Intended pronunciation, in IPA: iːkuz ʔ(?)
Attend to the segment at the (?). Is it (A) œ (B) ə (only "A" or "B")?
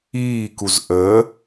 B